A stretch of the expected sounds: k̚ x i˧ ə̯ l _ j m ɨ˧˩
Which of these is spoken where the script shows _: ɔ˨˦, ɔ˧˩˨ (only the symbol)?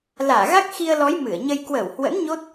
ɔ˨˦